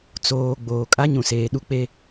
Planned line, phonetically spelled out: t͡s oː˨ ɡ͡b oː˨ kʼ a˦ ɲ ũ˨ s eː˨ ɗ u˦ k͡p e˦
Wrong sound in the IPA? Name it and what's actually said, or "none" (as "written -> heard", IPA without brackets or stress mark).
none